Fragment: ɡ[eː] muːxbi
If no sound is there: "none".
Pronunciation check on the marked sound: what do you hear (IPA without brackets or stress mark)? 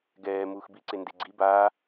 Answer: ɛː